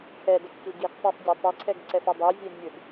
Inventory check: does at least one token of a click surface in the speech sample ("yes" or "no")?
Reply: yes